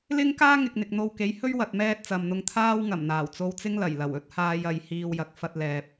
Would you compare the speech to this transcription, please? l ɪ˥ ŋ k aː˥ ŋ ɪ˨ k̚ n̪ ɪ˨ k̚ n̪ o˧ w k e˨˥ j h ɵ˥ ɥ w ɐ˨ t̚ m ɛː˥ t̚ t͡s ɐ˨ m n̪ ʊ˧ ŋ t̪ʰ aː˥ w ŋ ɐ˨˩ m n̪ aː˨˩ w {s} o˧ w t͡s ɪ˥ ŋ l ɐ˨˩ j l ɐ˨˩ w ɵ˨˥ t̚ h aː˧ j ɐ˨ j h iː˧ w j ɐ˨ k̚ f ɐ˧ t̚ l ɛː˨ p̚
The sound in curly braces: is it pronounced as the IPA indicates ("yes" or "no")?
no